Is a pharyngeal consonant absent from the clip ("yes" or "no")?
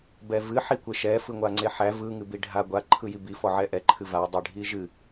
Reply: no